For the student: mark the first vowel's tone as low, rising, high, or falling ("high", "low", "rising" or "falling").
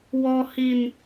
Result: high